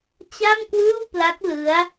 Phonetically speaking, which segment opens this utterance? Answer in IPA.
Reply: t͡ɕ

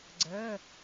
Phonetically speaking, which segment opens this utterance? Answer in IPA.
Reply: ɡ͡ǀ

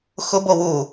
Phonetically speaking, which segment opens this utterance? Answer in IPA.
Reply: x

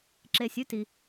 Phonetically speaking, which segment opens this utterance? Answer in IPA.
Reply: ǁ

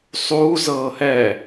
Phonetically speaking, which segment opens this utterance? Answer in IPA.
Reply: sˤ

